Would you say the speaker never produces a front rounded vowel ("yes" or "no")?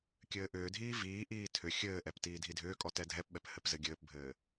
no